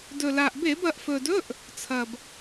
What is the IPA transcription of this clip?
dɵ˨˩la˨˩ʔbe˧˩˧b ɐ˩˧ʔfɵ˨˩dɵ˧˥˧ʔ | t͡sʰɐ˨˩b

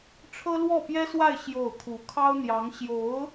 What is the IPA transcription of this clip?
ʈ͡ʂʰɤ˥lwɔ˥˩pjɛ˥swa˥˧ɪ̯ ɕjo˥˩ʊ̯ kʰu˧˥kʰɑ˥ʊ̯n̪jɑ˧˥ŋ ɕjo˧˥ʊ̯

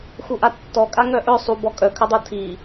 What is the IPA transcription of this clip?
xuʔatːɔkʼa ŋœʔœ sˤu bɔkʼœkʰœdˤo tʰi

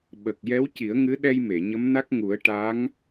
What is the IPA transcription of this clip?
ɓə˨˩k̚ jɛ˧˥wci˨˩˦ə̯ŋɨ˧˥ɗɛ˧j me˨˩˨ ɲə˧˥mna˦˥k̚ŋu˨˩˦ə̯ ʈa˧˥ŋ

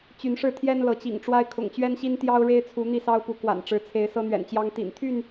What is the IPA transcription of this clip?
t͡ɕy˨˦nʂɻ̩˥˨t̪ʰjɛ˦n lɤ˨˦t͡ɕḭ˨˩ŋʈ͡ʂwa˦ɪ̯ kʰʊ̰˨˩ŋt͡ɕɥɛ˦nɕi˦n t̪jɑ˦ʊ̯ɻe˦ɪ̯t͡sʰu˨˦ n̪i˥˨sɑ˦ʊ̯pu˨˦ kwa̰˨˩nʈ͡ʂɻ̩˨˦t͡sʰe˨˦ɪ̯ sɤ˦n̪ɥɛ̰˨˩nt͡ɕjɑ˦ŋ t̪ḭ˨˩n t̪ʰy˥˨n

